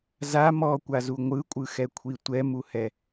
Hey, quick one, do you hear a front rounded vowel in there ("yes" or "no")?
no